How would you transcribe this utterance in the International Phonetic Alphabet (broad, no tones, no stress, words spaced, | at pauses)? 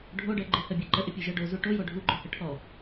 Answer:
ɖʱoɖɜ ɡ͡ǃɪhɜbʲɜ ǃəʔɪpʲuʒɜ ɖozu ʈojo ɖʱuɡ͡ǃohə ʈʰɔ